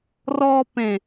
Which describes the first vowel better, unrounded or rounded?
rounded